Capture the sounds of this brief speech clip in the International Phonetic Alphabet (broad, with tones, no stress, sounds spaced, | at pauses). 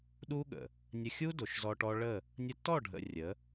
ɗ u˦ ɠ ə̰˨ | nʲ ə˧ xʲ u˦ d o˨ ʃ z ɔ˧ ʈ ɔ˦ ɭ ə˦˨ | nʲ ə˧ tː ɔ˦˨ ɖʱ ə̰˨ rʲ ə˨˦